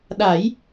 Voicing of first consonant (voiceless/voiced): voiced